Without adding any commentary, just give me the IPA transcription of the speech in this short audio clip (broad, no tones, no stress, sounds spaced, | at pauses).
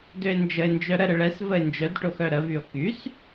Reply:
d ø e̯ n d͡ʒ ə e̯ n d͡ʒ œ ɾ ə ɾ ə ɭ ɛ s v ə e̯ n d͡ʒ œ d ʈ o x œ ɾ ə v y o̯ k y s